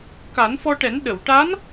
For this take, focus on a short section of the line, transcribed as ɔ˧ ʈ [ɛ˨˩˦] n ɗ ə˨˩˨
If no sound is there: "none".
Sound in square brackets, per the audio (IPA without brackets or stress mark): ɛ˨˩˦